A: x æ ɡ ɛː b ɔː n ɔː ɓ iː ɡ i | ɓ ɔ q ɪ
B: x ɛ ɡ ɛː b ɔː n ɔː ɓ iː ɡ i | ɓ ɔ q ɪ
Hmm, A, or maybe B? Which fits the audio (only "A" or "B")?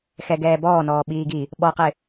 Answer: B